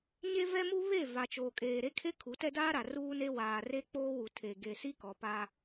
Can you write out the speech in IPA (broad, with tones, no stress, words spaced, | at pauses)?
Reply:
ɲe˦vɛ˦mu˦ βe˦˨ va˨t͡ʃoː˨kʼeː˨ ɾe˦kʰe˦ kʰu˨˦tɛ˦daː˦ɾa˨ ruː˦ne˦ waː˨ re˦k͡poː˦wu˨ tʰe˨ ɡe˨si˦ kɔ˨pa˦